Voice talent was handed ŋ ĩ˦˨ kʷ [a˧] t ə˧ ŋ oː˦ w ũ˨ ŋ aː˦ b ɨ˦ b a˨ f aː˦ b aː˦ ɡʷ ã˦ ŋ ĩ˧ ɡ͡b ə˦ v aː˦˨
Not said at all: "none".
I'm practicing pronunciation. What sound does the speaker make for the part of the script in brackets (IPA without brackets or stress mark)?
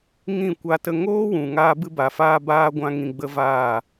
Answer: a˧